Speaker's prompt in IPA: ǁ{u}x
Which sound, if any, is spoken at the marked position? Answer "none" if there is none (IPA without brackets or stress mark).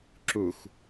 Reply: u